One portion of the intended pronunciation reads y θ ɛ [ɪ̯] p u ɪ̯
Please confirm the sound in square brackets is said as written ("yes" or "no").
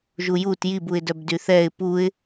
yes